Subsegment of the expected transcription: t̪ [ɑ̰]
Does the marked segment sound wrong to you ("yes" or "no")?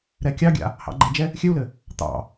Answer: no